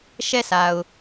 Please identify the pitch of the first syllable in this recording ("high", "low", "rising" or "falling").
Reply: falling